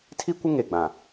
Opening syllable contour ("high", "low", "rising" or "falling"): high